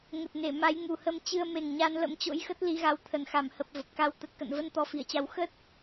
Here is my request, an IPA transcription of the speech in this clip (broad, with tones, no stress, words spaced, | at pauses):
ŋə˨˩t̚ ne˧˩ ma˨˦j ŋu˨˩hə˧m t͡ɕɨ˧ə̯ me˨˩ŋɲa˧n lə̰˧˥mt͡ɕo̰˧˥jxə˦˥t̚ li˨˦ɣa˨˦w t̪ʰə˧˩nxa˧˩mhə˨˩p̚ və˨˩p̚ka˧w t̪ə˨˩t̚ kə̰˧˨nvə˧n t̪ɔ˨˦fi˧˩ə̯t͡ɕa˨˦w xə˦˥t̚